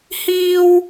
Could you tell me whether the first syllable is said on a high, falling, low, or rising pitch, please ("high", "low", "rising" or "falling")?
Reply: high